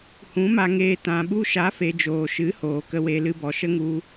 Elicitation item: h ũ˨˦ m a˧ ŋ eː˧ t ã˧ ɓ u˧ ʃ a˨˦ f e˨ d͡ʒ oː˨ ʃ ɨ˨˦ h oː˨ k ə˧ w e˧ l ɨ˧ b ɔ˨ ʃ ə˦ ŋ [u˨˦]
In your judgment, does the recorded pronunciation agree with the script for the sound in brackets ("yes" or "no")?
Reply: no